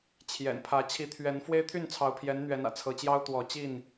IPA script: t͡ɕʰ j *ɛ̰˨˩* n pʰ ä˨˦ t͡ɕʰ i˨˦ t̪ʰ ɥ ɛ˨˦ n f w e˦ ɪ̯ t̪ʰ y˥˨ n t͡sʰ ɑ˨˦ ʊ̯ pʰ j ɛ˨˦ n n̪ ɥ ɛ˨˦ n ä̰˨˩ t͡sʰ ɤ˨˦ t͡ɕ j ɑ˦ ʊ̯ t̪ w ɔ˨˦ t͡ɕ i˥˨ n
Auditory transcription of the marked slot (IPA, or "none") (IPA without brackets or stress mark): ɛ̰˨˩